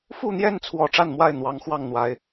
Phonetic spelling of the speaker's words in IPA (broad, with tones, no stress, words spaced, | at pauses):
fu˥˨n̪jɛ˥˨nt͡sʰwɔ˨˩ ʈ͡ʂa˥˨nmwa˥˨ɪ̯ n̪wɑ˨˦ŋ xwɑ˥˨ŋn̪wa˨˦ɪ̯